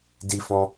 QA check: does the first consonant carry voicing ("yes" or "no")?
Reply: yes